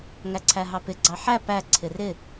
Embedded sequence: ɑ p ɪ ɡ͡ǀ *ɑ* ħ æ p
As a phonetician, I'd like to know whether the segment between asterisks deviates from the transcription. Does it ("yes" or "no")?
no